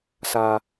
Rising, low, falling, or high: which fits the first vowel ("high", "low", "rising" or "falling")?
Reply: low